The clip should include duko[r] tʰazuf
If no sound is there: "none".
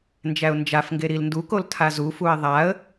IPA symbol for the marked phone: l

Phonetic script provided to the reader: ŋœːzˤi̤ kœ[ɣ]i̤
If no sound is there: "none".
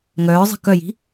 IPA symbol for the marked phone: j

